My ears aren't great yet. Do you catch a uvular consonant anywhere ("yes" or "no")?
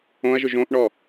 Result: no